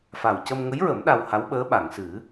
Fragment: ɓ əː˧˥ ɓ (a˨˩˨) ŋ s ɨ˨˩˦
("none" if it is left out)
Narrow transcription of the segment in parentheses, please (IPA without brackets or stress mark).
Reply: a˨˩˨